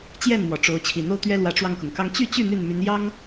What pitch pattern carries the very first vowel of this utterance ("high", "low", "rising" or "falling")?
falling